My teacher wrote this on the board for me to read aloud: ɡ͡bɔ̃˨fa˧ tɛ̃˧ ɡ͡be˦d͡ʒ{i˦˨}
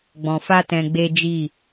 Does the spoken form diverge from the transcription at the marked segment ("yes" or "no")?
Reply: no